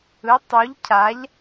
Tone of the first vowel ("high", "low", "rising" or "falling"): rising